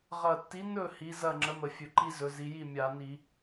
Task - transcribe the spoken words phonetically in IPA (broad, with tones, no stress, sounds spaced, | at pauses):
ʁ ɐ˨˩ tː i˨˥ n ɵ˥˨ h i˨˥ z ɐ˥˨ ŋ͡ǁ ə˨˥ m ə˧˩˧ fʲ ɵ˨˩ ǃ i˦ z ɵ˩˧ z i˩˧ j i˥˨ mʲ a˧˩˧ n i˧˩˧